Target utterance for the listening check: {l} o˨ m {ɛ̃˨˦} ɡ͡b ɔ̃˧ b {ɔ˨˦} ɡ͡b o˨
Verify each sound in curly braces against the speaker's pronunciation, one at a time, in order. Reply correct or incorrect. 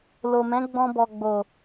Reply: correct, correct, incorrect

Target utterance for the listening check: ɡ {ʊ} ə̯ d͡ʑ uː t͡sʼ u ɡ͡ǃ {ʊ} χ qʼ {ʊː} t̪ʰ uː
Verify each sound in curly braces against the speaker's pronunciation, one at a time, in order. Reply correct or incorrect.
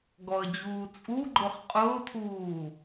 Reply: incorrect, correct, correct

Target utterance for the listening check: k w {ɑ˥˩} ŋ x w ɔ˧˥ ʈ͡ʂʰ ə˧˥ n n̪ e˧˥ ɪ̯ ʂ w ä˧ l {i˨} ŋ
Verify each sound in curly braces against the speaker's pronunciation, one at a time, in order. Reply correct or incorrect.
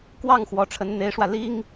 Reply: correct, incorrect

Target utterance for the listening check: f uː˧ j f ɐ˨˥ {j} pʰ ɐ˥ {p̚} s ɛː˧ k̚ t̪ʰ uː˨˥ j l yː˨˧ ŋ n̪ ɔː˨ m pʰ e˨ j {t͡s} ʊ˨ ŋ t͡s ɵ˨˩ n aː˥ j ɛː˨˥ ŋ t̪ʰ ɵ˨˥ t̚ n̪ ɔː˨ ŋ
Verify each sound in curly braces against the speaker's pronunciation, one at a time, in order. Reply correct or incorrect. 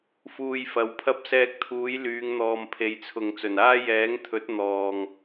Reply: incorrect, correct, incorrect

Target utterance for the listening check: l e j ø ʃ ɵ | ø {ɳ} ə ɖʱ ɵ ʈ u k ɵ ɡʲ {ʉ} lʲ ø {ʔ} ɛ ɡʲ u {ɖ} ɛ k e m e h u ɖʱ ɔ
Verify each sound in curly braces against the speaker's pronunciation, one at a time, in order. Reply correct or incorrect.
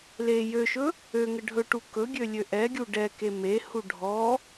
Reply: incorrect, incorrect, correct, correct

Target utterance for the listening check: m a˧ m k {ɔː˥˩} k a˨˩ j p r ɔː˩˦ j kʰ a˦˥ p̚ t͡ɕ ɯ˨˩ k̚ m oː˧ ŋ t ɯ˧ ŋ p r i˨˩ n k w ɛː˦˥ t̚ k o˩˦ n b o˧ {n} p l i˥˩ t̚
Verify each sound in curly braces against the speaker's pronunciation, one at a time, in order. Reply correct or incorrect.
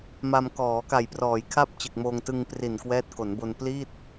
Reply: incorrect, correct

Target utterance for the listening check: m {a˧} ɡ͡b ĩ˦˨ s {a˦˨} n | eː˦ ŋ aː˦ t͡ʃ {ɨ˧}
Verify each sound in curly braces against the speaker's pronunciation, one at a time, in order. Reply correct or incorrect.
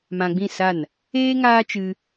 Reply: incorrect, correct, correct

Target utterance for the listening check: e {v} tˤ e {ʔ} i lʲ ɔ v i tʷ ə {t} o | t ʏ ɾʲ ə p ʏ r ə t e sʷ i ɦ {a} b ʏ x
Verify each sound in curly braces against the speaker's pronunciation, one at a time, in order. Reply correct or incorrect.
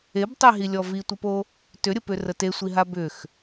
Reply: incorrect, incorrect, incorrect, correct

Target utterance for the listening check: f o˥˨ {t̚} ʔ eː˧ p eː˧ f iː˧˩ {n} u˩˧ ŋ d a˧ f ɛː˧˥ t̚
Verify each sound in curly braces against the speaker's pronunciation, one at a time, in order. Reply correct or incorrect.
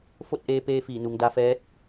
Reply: correct, correct

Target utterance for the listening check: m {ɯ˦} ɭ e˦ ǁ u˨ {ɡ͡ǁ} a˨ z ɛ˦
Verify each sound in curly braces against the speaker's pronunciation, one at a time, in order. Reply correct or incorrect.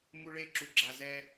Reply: incorrect, correct

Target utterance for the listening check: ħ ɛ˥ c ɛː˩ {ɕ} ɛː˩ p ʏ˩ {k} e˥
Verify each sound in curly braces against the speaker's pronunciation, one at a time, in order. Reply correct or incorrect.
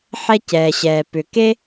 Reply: correct, correct

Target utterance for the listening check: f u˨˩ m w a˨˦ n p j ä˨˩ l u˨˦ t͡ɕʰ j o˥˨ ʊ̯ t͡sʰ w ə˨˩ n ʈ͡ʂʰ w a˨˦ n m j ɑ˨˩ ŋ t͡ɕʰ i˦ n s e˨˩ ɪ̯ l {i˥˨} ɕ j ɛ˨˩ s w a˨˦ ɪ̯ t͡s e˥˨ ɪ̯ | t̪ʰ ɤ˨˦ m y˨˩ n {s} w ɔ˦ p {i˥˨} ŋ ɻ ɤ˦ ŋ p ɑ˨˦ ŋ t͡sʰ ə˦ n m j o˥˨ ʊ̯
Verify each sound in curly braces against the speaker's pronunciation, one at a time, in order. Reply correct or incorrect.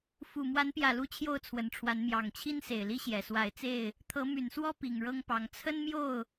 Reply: incorrect, correct, incorrect

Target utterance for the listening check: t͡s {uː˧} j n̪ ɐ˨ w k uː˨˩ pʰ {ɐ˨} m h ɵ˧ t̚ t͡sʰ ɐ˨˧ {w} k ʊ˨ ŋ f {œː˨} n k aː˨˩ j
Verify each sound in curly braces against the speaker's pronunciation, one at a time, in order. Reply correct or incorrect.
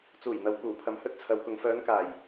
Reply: incorrect, correct, correct, incorrect

